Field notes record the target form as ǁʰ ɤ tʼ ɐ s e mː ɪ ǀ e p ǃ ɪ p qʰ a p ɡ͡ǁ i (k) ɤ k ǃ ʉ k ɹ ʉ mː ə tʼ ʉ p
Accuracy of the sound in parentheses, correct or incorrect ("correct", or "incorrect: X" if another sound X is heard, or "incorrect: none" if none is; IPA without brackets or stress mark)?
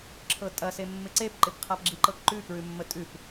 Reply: incorrect: ǃ